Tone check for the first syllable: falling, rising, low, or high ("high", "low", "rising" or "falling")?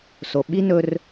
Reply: low